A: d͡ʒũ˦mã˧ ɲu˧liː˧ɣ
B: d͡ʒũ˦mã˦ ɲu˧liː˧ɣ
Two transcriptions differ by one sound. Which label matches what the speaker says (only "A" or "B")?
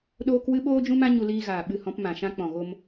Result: B